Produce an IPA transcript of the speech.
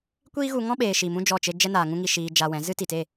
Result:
kʷ iː˦ ɣ u˧ ŋ ɔ̃˦ ɓ eː˨ ʃ i˨ m ũ˦ d͡ʒ ɔ˦˨ t͡ʃ e˦ d͡ʒ ɛ˦ n aː˨ ŋ ũ˦ ŋ i˧ ʃ iː˧ d͡ʒ a˧ w ɛ̃˨˦ z ɨ˦ t i˨ t e˦˨

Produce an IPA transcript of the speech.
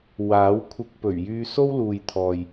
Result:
w aː˨˥ w kʷʰ ɪ˧ k̚ p ɵ˨˩ ɥ j yː˧ s o˥ w l uː˨ j t̪ʰ ɔː˨ j

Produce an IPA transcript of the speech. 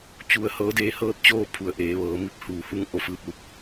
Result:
t͡ɕ u˧ ə̯ h ɤː˧˥ d eː˧˥ h ɤː˧˥ t̚ t͡ɕ oː˥˨ pʰ u˩ ə̯ ʔ eː˩˧ ʋ ɤː˩˧ m i˥˨ p̚ h uː˩ h u˧˥ ŋ ʔ o˧˩ f ɯː˧˩ p̚ l u˧ p̚

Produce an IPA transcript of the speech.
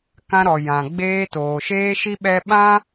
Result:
k ã˧ ɾ ɔ˨ j ã˨ ɡ͡b eː˧ t oː˨ ʃ eː˦ ʃ i˦ ɓ ɛ˦ ɓ ã˦

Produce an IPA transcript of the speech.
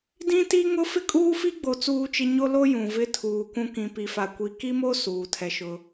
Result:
d ĩ˦ t i˦ ŋ ʊ˦ f ɪ˦ kʼ uː˦ f i˦ ɡ͡b o˨ t͡s uː˦ t͡ʃ ɪ˦ ɲ o˦ l o˦ j ũ˨ v ɪ˦ tʰ uː˨ kʷ ũ˦ k ĩ˨ p i˨ f a˨ kʷ i˨ k i˦ m o˦ s uː˨ tʰ ɛ˦ ʃ ʊ˦

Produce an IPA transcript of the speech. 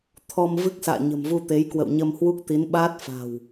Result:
t̪ʰ ɔ˧ m v ɨ˦˥ k̚ s a̰ː˧˨ ɲ ə̤˨˩ m v u˧ t̪ e˨˦ j k w ə̰˧˨ w ɲ ə˧ m h w u˦˥ k̚ t̪ i˨˦ n ɓ aː˦˥ t̚ f a̤˨˩ w

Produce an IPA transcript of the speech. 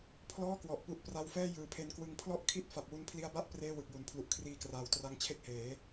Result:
pʰ l ɔː˥˩ k w ɔ˨˩ ʔ p u˨˩ ʔ p r a˧ w f ɛː˥˩ j ɯː˨˩ pʰ e˧ n k w ɯ˧ ŋ pʰ l ɔ˥˩ ʔ kʰ i˥˩ t̚ f a˨˩ p̚ w u˧ n pʰ l i˦˥ a̯ b a˥˩ ʔ p r eː˥˩ w ɯ˨˩ k̚ j u˨˩ n pʰ l u˨˩ ʔ kʰ r iː˧ k r aː˨˩ w t r a˦˥ ŋ t͡ɕʰ e˥˩ k̚ h eː˩˦

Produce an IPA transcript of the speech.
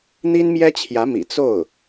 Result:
n̪ i˥ n m j ɛ˥ t͡ɕʰ j ä˧˥ m ḭ˨˩ t͡s o˥˩ ʊ̯

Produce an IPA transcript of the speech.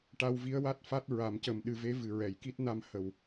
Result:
ʈ a˧ w v i˧˥ ə̯ w a˦˥ t̚ f a˦˥ t̚ ɹ a˨˩˦ m c ə˨˩ m ɗ ɨ˨˩˦ v e˧˥ v ɨ˨˩ ɹ ɛ˨˩˨ j k i˦˥ t̚ n a˧ m h ə˨˩ w

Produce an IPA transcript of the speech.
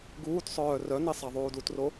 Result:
ɡ uː t sˤ œː r œ n i sˤ a ðˤ uː d u t r o

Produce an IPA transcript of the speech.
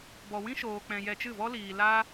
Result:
b ɔ˧ w ĩ˦ ʃ oː˧ k͡p ɛ̃˧ j ɛ˧ t͡ʃ ɨ˦˨ v ɔ˦ l iː˧ l a˦

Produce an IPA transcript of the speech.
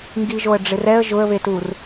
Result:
ŋ ɡ i ʒ o ə̯ ɖ͡ʐ ɪ r ɛ ə̯ ʒ ʊ ə̯ β e t u r

